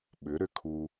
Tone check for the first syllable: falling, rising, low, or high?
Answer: rising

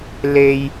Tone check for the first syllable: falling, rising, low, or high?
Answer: high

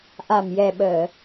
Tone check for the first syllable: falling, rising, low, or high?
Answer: low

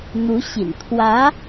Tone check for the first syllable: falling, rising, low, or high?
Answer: rising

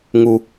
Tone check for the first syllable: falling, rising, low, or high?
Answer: low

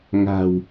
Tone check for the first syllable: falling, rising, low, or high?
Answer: low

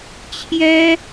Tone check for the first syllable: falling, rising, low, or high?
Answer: high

